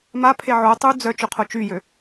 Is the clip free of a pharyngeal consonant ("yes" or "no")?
no